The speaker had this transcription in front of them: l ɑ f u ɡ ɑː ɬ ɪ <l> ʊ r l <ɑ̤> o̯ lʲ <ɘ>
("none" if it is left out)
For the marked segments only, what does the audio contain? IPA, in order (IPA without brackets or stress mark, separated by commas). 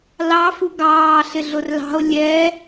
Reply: ɮ, ɑ̤, ɛ